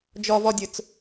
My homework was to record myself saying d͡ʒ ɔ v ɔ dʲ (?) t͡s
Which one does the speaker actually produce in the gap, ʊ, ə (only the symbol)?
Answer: ʊ